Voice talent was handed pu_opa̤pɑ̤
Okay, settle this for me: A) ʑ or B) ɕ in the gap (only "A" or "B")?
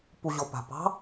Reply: A